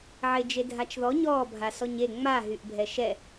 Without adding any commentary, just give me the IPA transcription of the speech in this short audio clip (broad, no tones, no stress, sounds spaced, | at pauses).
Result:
ʕ e d͡ʒ e dʱ a t͡ʃ ð ɔ ɲ ɔ bʱ a s ɔ ɲ e ŋ͡m a ɦ y ʔ bʱ ɛ ʃ ɛ